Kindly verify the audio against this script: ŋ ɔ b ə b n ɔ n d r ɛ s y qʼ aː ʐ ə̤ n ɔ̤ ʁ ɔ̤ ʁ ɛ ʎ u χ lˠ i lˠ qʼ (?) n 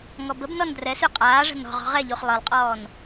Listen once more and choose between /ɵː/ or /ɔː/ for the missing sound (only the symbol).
ɔː